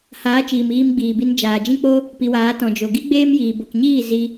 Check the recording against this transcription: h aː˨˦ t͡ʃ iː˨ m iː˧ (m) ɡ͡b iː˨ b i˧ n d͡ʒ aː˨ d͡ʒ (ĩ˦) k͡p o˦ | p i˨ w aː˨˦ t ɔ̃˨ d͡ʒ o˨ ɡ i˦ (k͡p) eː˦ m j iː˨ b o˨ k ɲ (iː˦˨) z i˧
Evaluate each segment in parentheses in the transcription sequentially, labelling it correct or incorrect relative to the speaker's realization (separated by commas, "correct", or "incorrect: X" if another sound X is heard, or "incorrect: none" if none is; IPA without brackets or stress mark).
correct, correct, incorrect: ɡ͡b, correct